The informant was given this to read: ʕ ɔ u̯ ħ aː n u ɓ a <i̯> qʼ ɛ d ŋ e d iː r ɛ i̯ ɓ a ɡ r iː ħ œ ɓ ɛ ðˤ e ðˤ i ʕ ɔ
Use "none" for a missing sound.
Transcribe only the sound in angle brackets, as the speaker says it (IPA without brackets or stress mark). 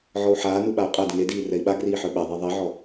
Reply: u̯